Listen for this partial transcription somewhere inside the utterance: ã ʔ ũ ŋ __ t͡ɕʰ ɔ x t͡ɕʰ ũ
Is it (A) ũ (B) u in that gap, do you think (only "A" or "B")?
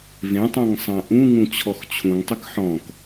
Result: A